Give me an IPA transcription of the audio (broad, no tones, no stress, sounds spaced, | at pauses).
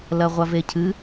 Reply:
l ɐ ʁʷ a v e cʰ ɨ